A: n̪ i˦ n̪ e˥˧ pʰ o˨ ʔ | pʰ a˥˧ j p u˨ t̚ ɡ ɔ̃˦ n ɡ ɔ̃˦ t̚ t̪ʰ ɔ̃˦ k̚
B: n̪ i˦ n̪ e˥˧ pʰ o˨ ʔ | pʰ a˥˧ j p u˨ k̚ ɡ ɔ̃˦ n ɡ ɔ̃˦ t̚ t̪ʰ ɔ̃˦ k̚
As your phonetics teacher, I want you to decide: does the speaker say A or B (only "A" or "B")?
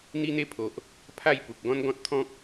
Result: B